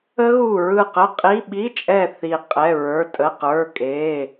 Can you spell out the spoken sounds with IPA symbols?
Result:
ə˦˥ɣu˦˨ɹɯ˦˨ qə˧˥˧qʼi˧˥˧ ɓi˧˥˧t͡ʃʼɛ˦˨ θi˦˨qʼɛ˧˥˧ɹə˞˧˥˧ tʼə˧˥˧qə˞˧˥˧kʼe˧˥˧

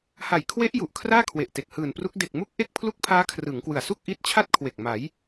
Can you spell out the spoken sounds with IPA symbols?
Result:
ha˨˩jkʰwe˦˥ʔ ju˨˩ʔkʰraː˥˩kʰwe˨˩ʔte˨˩k̚ hɯː˨˩npru˦˥k̚ de˨˩k̚mu˦˥k̚ ʔe˥˩k̚pʰlu˥˩k̚ pʰaː˦˥ kʰrɯ˩˦ŋkwɯ˨˩a̯ su˥˩k̚ʔi˦˥t̚t͡ɕʰa˥˩t̚kʰwe˨˩k̚ ma˩˦j

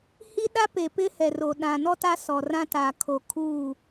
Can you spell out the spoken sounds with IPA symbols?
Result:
hi˦ɗa˦pe˨ pɪ˦hɛ˨ro˨ ɗã˨nɔ˦ta˦ sɔ˨rã˦ ta˨kʰo˨ kʰuː˦˨

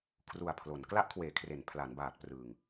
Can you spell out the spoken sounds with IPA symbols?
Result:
kʰru˨˩a̯pʰlo˩˦n kla˦˥ʔkʰweː˩˦kʰre˩˦n pʰla˩˦nbaː˨˩t̚ prɯ˨˩ŋ

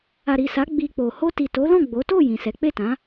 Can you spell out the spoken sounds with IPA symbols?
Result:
a˨ɾi˨sa˨˦ ɡ͡bi˧k͡po˨ ho˧ti˨to˨˦lɔ̃˦˨ ɡ͡bo˨˦ to˦˨ jĩ˨sɛ˨˦ k͡pe˦˨tã˨˦

